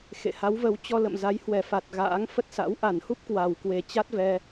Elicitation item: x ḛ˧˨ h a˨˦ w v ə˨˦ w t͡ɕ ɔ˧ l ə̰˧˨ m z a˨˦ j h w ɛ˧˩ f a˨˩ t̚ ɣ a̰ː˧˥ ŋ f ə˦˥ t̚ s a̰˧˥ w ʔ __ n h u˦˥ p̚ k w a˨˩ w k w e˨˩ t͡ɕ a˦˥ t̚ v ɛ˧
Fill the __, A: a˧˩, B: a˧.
A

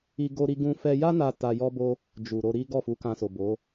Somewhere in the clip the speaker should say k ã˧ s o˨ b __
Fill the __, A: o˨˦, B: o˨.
A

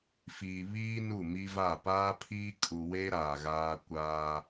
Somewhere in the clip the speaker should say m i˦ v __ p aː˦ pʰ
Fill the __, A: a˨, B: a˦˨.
B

